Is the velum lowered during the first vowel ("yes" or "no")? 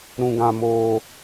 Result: yes